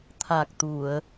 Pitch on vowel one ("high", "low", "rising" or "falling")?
low